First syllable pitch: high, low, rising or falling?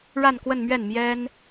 falling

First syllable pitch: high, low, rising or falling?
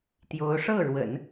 rising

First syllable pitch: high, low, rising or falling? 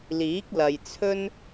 rising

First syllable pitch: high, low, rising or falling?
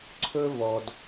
high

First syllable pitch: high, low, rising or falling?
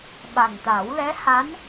low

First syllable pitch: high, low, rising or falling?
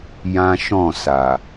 high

